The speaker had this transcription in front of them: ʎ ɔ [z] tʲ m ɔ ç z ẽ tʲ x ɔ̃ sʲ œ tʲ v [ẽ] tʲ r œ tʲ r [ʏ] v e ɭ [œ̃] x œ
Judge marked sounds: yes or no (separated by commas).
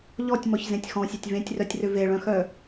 no, yes, yes, yes